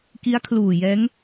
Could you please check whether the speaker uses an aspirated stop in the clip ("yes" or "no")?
yes